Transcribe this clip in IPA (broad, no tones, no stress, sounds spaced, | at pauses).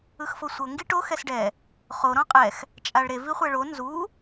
ɯ x f ɤ sʷ ɤ ŋ ɡ i ʈ o x ɛ s ɖ ɛ | χ o ɾ ɔ̃ qʼ ɛ x | t͡ʃʼ a ɭ ɾ e v i χʷ ɛ ɭ o n z u